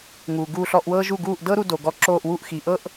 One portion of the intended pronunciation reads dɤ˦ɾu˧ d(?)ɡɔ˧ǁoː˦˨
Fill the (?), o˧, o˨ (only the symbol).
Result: o˨